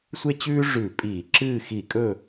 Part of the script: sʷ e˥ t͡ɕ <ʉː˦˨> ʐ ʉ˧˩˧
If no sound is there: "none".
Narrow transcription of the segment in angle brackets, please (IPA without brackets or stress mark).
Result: ʉː˥